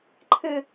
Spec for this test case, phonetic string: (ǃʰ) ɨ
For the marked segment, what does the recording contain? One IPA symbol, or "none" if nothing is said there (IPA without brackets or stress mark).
ǃʰ